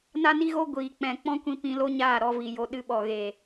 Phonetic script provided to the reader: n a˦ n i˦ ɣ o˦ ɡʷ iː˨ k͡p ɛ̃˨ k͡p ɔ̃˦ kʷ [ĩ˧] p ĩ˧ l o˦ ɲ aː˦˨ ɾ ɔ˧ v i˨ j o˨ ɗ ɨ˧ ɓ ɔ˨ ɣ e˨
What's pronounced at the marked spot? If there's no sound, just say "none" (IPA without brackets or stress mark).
ĩ˧